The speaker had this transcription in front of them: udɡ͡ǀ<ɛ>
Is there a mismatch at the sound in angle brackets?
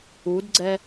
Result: no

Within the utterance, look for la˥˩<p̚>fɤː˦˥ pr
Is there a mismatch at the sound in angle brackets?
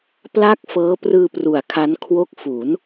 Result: yes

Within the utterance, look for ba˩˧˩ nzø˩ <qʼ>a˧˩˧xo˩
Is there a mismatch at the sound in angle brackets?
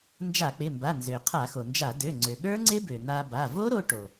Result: yes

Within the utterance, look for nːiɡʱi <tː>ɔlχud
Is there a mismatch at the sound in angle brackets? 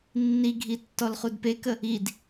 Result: no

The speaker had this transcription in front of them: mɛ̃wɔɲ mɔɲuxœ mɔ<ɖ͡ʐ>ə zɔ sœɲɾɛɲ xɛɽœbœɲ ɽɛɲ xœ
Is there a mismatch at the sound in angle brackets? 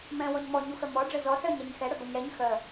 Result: no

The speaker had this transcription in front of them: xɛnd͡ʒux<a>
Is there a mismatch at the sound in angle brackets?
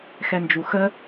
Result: yes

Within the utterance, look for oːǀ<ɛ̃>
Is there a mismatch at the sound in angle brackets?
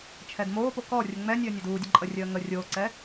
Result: yes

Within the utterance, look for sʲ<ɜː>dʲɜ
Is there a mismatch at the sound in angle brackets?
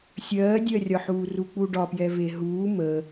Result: no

